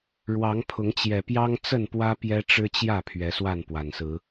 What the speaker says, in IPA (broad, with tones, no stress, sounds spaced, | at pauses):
ɻ w ɑ˨˦ ŋ pʰ ʊ˨˦ ŋ t͡ɕ j ɛ˨˩ p j ɑ˦ ŋ t͡s ə˥˨ n p w ä˦ p j ɛ˦ ʈ͡ʂ ɻ̩˦ t͡ɕ j ä˥˨ pʰ ɥ ɛ˨˦ s w a˥˨ n p w a˨˩ n s ɹ̩˨˦